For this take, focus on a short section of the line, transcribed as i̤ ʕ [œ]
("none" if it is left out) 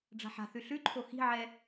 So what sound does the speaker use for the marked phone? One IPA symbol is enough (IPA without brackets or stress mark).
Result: ɛ